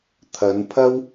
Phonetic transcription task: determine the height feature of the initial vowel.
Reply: low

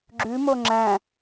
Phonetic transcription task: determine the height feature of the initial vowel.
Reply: high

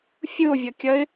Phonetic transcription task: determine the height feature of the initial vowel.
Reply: high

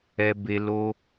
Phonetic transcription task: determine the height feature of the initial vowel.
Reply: mid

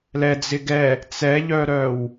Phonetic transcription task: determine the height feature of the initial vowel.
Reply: mid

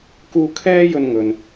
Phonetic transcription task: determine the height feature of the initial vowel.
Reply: high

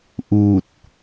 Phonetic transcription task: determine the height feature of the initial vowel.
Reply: high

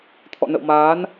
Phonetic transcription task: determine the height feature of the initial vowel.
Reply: mid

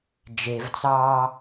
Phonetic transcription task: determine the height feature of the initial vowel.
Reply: mid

